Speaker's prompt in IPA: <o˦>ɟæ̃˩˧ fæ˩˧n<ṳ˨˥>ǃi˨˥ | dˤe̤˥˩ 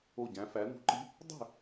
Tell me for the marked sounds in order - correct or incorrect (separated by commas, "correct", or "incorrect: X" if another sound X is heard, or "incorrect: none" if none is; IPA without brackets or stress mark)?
incorrect: o˧˩, correct